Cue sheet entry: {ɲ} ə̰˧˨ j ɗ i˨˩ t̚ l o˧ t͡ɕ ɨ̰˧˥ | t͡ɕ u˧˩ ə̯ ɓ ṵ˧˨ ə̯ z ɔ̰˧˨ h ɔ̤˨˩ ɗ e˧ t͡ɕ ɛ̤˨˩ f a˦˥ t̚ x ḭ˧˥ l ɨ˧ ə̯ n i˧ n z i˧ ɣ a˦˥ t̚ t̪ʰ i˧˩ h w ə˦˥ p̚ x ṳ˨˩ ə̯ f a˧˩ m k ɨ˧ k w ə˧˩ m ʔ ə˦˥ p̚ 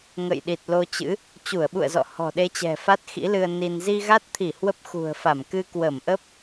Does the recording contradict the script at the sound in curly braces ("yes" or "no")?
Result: yes